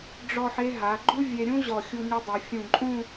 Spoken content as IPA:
ɖ͡ʐ ɔ˥˧ ħ e˥ ɦ a˩˧ ɡ͡ǃ u˥ vʲ e˧ ɾʲ ũ˥ ʑ ɔ˧˩ xʲ u˧ ɲ ɨ˧ dˤ ɨ˩˧ fʲ ũ˧˩ ǃʼ ũ˥˧

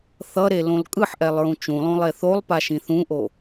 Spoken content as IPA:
θ ʌ ɾ e l õ l kʼ ɯ ħ ʔ ɛ lˠ ɹ ũ t͡ʃ ũ lˠ õ lˠ e θ o lˠ p a ʃ ĩ θ ũ ʔ o

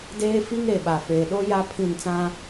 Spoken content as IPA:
d eː˦ f i˦ ŋ ɾ e˨ ɓ a˨ f eː˨ ɗ o˦ j a˦ pʰ ĩ˦˨ n t͡s ã˦

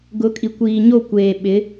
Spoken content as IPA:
ɡ ʊ˨˦ kʼ i˨ kʷ iː˨ ɲ o˦˨ kʷ eː˨ ɓ ɪ˨˦

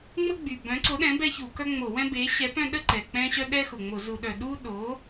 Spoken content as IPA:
ŋ͡m ə˦ ɡ͡b y˨˩ b œ̃˨˥ ǀ o˨˥ ɗ ɛ̃˨˥ b ɛ˦ ç u˧˩˧ k œ˦ ŋ͡m o˧˩˧ w ɛ̃˦ b e˨˥ ɕ ɛ˨˥ p œ̃˦ ɗ ə˦ ǃ ɛ˨˩ k͡p ɛ̃˦ ɕ œ˦ ɗ ɛ˦ x ʊ˨˩ ŋ͡m o˧˩˧ z u˧˩˧ ɗ œ˨˩ ɗ u˦ ɗ o˨˥

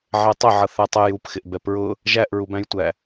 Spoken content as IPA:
ʕ ɛ tˤ ə ʕ ʌ θ æ tˤ ɛ j u p x ɪ ʔ b ɛ p ɹ ʊ | ʒ æ ʔ ɹ u b æ̃ j tʷ æ

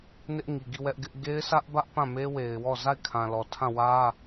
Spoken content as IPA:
n ɪ˦ ʔ ŋ i˨ ɡ i˦˨ w ɛ˦ ʔ ɡ ɪ˦ ʔ ɡ e˦ ɪ̯ s ä˦ ʔ b ä˦ ʔ p ã˦˨ m e˦ w e˨ ɪ̯ w ɔ˦˨ z a˦˨ ɪ̯ kʰ ã˨ l ɔ˨ tʰ ã˦˨ w ä˦

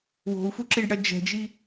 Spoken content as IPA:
w o̤ u̯ f u ǁ i ɖ ɽ ɐ d͡ʒ ɛ̤ d͡ʒ i

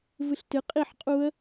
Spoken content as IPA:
v ɨ ɬ t ɨ qʼ i ħ qʼ u ə̯

